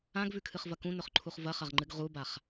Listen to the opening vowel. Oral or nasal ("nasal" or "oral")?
nasal